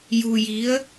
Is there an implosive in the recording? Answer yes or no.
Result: no